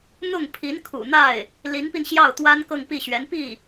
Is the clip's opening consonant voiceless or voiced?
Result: voiced